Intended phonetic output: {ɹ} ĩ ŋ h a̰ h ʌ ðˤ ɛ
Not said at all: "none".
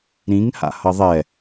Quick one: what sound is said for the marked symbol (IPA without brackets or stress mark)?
ɾ